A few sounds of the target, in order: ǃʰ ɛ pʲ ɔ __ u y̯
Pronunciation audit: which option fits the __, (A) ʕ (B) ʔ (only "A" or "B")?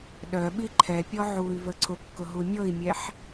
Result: A